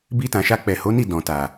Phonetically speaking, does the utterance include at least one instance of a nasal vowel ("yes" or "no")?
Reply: yes